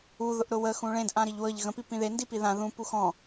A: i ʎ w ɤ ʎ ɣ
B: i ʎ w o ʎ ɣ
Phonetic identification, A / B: A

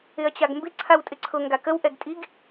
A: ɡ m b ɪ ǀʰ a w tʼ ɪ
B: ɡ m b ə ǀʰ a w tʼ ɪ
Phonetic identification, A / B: A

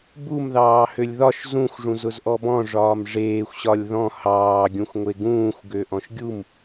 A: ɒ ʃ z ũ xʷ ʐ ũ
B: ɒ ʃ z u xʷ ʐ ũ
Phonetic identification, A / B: A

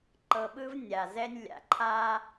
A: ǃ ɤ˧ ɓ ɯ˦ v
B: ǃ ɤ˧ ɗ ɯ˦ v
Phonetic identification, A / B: A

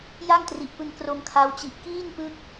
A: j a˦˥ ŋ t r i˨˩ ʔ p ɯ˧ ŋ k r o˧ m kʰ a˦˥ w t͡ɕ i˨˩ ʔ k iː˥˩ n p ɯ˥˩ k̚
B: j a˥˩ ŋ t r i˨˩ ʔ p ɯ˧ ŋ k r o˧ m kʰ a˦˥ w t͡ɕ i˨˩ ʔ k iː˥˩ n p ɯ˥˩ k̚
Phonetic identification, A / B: B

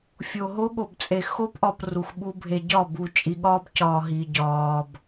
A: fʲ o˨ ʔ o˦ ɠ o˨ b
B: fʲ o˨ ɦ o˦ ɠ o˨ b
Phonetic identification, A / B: B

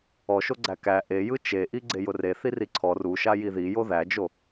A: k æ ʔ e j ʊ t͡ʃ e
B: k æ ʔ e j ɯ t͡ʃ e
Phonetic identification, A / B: B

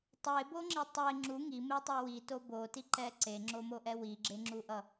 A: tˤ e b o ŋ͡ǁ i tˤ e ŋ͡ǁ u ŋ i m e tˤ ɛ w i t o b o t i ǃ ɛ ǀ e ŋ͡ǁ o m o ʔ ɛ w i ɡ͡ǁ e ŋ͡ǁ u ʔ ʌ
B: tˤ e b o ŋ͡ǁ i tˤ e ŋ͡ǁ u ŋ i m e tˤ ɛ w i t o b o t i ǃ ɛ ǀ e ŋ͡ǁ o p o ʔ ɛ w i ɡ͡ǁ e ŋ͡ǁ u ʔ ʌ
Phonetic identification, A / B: A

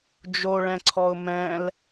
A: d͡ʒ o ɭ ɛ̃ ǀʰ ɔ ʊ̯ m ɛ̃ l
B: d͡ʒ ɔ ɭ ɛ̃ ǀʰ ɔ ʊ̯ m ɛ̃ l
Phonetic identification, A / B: A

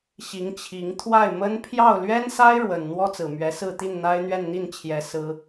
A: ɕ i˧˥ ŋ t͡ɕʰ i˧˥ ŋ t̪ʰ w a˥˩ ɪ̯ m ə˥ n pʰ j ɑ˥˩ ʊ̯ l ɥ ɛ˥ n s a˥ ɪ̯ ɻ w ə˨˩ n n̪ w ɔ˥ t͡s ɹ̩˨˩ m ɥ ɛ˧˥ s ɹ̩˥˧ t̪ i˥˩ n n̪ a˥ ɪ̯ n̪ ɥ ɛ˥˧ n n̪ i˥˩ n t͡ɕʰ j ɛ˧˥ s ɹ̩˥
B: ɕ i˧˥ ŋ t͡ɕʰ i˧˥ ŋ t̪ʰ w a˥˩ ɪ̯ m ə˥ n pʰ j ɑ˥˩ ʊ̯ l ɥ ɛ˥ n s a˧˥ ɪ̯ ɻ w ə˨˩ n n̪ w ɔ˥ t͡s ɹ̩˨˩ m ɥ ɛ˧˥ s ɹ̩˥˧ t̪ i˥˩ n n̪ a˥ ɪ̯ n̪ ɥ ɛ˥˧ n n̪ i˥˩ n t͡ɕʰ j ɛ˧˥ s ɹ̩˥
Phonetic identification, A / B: A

